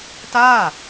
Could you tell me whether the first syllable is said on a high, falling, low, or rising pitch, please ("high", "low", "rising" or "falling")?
falling